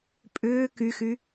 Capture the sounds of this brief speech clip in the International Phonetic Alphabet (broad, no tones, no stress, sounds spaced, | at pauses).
pʼ ʏː k y x y